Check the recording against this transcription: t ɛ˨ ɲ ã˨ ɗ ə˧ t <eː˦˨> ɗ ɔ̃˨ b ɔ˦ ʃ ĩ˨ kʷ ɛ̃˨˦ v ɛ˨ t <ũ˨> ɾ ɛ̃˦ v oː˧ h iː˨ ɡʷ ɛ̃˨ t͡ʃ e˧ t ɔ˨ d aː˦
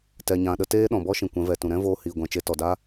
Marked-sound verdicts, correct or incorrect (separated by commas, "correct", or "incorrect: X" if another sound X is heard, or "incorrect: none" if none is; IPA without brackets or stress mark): incorrect: eː˦, correct